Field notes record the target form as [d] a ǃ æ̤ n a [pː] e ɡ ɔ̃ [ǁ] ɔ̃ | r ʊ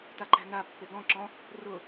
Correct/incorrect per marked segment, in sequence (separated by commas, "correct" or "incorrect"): incorrect, correct, correct